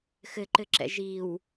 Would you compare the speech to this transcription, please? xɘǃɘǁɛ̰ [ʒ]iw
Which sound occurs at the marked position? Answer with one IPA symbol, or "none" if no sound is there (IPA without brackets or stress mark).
ʒ